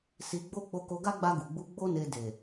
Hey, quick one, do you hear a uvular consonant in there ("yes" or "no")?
no